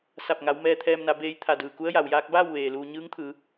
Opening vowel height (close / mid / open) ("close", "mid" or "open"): open